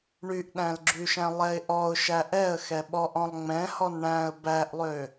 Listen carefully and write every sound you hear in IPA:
ɳ y ʔ ɗ æ̃ l ɡ͡ǁ y ʃ æ̃ lˠ ɛ ɪ̯ ʔ ɔ ʊ̯ ʃ æ ʔ ɛ ə̯ x ɛ ɓ ɔ ʔ ɔ̃ lˠ ŋ͡m ɛ̃ h ɔ n ɳ æ̃ ə̯ b æ ʔ lˠ ø

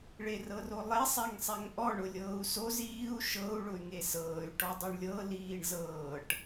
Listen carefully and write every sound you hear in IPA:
ɭ e r ɤ r o lˠ e sˤ ɛ ŋ sˤ ɛ ŋ ʔ ɔ ɳ ʊ lʲ ɤː u̯ s o z iː u̯ ʃ ɤ u̯ ɭ ʊ y̯ ŋ e s ɤː y̯ ʈ ɔ dˤ ɤ ɳ lʲ ɤ l iː ɳ z ɤː ʈ

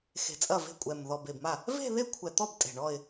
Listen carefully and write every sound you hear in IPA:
x e̤˨˩ t͡sʼ ɐ˥˩ v e̤˥˩ kʷʼ ɛ˨˩ m ð ɔ˨˩ b e˨˩ b m a˥˩ | v e̤˥˧ ð e˥˧ kʷʰ ɛ˨˩ t̪ ɔ˥˩ b tʼ e̤˨˩ ɳ ɔ˥˧ ɪ̯

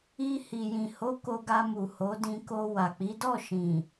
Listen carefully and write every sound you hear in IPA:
i˧ h i˨ j ĩ˨ h o˨˦ k o˧ ɡ a˧ m u˨ h o˨˦ d ĩ˧ k o˧ w a˨ k͡p i˨˦ d ɔ˦˨ ʃ ĩ˨

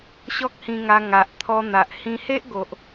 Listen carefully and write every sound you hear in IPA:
ɕ ɔ˦ k̚ h ĩ˧ ŋ a˧ ŋ a˨ ʔ t̪ʰ ɔ˧ n̪ a˨ ʔ h ĩ˧ h e˦ ʔ ɡ o˨ ʔ

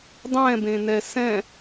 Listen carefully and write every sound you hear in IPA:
dˤ ɛ̃ b ẽ n ɛ s ɛ̃

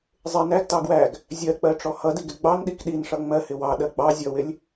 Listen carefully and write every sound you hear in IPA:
zˤ ɪ n æ ɡ t ɑ ɡ w æ ɡ | zʲ ɜ k͡p ɜ ʈ͡ʂ ɔ h ʌ d i ɡ ɪ ɡ͡b ɑ n ɗ i k ɗ i n ʂ ʌ ŋ͡m ɜ h ɪ w ɑ ɗ ɜ ɡ͡b ɑ zʲ ʌ w ɪ lʲ

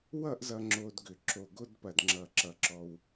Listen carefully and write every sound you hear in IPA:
w ʌ˥˧ ʔ z ʌ˧ ŋ͡ǁ o˧ d ɡ ʏ˧˩ ǁ o˧˩ ɡ o˥˧ d p ɐ˧˩ d ŋ͡ǁ ʌ˧˩ ǁ ʌ˧˩ ǁ ɔ˧ w

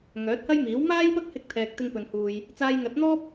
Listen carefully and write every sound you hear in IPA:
ŋ œː˨˥ t̚ h ɐ˥ j m iː˨˥ w m aː˥ j p ɐ˥ k̚ h ɪ˧ k̚ t̪ʰ ɛː˧ k̚ t̪ ɪ˥ ŋ p ɵ˧ n h uː˧ j | t͡s aː˧ j ŋ ɐ˨˥ t̚ n̪ ɔː˥ p̚

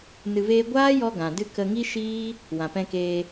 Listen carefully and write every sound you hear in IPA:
n ɨ˧ v eː˦ ɡʷ aː˦ j ɔ˧ ɡ ã˨ d ɨ˦ k ə˧ ŋ i˦ ʃ iː˦ | w ã˨ p ɛ̃˧ k eː˧

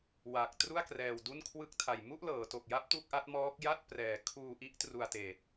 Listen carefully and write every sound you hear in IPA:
w aː˨˩ k̚ t r u˥˩ a̯ k r ɛː˧ w d u˥˩ n kʰ w ɯ˦˥ k̚ tʰ a˨˩ j m u˥˩ ʔ l ɤː˩˦ t o˨˩ k̚ j a˦˥ p̚ t u˥˩ k̚ ʔ a˦˥ t̚ m ɔː˦˥ k̚ j a˥˩ t̚ p r ɛː˩˦ kʰ uː˧ ʔ i˦˥ ʔ t r u˧ a̯ t eː˨˩ t̚

